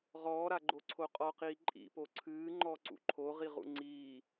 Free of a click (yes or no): no